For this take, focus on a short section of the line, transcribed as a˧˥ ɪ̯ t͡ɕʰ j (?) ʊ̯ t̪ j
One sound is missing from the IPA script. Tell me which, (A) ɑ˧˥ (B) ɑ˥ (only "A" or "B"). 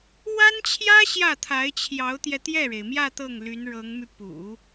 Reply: A